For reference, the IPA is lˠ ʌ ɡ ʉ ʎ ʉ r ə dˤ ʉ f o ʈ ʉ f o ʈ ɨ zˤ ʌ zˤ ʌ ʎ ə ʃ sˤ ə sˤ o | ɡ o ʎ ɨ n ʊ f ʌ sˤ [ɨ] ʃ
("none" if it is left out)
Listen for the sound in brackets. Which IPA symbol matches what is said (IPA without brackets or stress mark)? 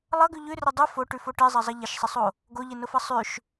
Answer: ʉ